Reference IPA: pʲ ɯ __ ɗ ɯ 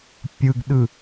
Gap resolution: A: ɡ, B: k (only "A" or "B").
A